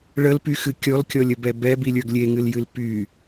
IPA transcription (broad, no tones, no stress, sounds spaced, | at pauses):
ɭ ə l p y x ɨ kʲ ɔ l kʲ ɔ lʲ ə b ɛ b ɛ b i lʲ ə˞ ɡ lʲ e ŋ ɨ l j ɨ l p y